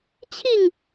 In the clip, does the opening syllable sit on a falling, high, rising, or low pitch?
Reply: falling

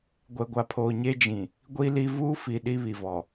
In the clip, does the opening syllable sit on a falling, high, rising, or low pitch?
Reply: low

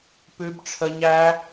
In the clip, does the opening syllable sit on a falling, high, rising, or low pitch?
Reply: high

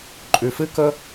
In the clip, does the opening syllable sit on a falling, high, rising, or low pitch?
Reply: low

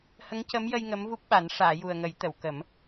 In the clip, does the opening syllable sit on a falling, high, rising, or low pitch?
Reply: rising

